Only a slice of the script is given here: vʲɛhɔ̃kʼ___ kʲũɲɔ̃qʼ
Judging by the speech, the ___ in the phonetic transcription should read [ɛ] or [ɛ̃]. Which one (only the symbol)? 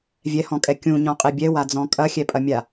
ɛ